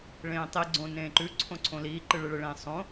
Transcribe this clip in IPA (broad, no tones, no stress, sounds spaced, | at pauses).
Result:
ɭ ẽː tˤ i ɡ͡ǀ õ n ẽː ǃ ʉ ǀʰ õ ǀʰ õ l iː ǃ ɨ ɭ ɨ ɭ ɨ ɭ ẽː sˤ õ